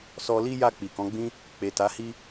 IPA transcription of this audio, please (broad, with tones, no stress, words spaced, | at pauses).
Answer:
sɔ˧li˦ja˦˨ k͡pi˨kɔ̃˨˦ɡ͡bĩ˦ | k͡pe˨ta˨˦hi˦